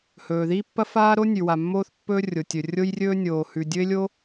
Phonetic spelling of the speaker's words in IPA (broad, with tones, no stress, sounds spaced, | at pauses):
h ɵː˩ ð i˥ pː ɐ˥ f aː˥ ɾ o˥ nʲ ʉ˩ w a˩ mː oː˥ θ pː ɵː˥ rʲ o˩ tʲ ɵ˩ rʲ o˥ j rʲ ɵː˥ nʲ oː˩ h ʉ˩ dʲ ɵ˥ ɪ̯ lʲ o˥